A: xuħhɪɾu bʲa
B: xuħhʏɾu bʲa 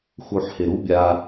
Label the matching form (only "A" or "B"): A